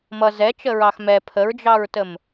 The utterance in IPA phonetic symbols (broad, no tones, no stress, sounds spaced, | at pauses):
m ʌ z ɛ t͡ʃ ə ɹ ɑ x m ɛ pʰ ə ɹ d͡ʒ ɑ ɹ t ə m